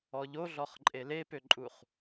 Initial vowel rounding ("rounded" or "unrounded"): rounded